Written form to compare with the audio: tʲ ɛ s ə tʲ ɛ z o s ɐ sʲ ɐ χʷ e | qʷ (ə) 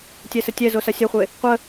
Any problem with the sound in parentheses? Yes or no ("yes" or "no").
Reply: no